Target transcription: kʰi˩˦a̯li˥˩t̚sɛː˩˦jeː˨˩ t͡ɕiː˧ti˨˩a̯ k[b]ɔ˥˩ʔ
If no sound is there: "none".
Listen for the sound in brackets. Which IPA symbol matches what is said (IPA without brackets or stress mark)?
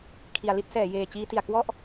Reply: w